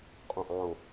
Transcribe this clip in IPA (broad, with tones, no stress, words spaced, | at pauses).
qʼõ˧˩ʔɑ̃˧˩o̯